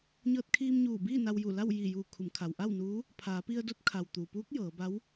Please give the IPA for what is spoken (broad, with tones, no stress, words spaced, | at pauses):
ɲɤː˧t̚kʰiː˧mɲuː˧˩biː˥˨ na˧wju˧˩ la˥˨wjiː˧˩juː˧˩ kʰu˩˧mkʰa˩wʔa˥˨wnuː˧˥ | pʰaː˩˧pi˧ə̯ do˧˥t̚kʰa˩w t̪u˩puː˧˥k̚ jɤː˩˧ba˧˥w